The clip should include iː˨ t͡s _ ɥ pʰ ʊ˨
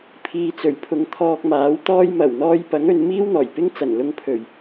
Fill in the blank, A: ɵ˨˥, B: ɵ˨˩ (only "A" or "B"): B